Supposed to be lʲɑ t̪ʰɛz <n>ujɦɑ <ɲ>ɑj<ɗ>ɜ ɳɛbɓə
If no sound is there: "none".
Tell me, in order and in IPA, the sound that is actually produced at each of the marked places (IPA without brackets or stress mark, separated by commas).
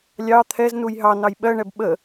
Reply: n, n, ɓ